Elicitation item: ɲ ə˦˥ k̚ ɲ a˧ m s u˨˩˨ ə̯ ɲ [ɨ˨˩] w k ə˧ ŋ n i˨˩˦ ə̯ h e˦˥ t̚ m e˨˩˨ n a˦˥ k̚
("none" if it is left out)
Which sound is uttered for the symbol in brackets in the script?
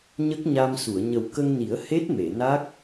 ə˨˩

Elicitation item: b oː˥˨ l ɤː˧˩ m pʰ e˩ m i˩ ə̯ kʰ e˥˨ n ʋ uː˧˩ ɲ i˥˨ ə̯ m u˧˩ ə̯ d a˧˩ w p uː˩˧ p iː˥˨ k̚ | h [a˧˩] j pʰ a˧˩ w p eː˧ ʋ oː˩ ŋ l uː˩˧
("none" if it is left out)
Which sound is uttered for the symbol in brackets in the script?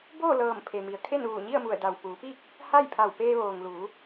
a˥˨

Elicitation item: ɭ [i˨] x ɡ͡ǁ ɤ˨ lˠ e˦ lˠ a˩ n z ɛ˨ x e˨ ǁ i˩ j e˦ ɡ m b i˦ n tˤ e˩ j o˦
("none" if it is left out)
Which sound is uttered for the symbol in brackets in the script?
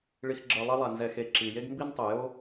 i˨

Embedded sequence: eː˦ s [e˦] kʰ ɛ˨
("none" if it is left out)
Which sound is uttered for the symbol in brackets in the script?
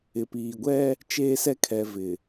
ɛ˦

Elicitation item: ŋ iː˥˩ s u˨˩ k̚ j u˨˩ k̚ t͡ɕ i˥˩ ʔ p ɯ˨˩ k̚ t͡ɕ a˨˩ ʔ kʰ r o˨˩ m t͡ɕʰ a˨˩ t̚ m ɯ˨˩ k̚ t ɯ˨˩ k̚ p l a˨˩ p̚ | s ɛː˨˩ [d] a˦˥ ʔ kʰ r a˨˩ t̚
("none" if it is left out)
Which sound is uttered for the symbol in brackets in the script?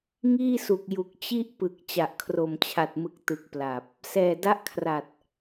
d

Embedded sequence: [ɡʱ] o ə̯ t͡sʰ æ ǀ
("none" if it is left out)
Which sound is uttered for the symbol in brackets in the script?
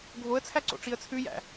ɡʱ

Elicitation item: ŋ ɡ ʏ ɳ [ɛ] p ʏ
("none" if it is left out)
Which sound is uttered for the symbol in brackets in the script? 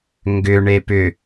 e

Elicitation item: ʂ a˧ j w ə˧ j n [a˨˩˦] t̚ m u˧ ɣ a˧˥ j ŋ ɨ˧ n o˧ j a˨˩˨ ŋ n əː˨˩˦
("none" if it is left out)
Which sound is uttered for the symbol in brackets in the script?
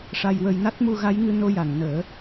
a˦˥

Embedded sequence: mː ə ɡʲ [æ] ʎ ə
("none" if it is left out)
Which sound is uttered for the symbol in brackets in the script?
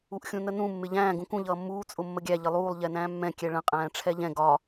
æ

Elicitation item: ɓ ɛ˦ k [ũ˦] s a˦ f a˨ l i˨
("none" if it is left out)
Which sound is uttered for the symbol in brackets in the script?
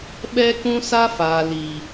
ũ˦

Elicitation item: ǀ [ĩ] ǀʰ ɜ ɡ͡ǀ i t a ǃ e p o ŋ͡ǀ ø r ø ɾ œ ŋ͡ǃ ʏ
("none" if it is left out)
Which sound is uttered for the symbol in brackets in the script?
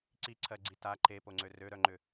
i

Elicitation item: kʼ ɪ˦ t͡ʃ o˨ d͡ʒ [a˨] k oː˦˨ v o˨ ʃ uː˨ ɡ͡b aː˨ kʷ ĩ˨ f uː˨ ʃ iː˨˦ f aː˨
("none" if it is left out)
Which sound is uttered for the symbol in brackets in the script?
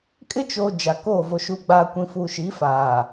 a˨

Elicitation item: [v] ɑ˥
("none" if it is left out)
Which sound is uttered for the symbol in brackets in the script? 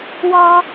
w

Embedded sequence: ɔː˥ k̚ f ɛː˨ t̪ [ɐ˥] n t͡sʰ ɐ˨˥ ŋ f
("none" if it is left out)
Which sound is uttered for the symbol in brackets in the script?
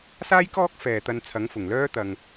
ɐ˧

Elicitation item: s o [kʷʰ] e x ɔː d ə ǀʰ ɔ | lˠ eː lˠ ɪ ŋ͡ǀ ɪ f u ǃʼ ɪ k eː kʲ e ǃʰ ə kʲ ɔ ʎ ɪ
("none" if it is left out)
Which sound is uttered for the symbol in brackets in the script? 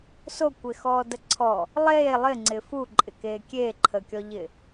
kʷ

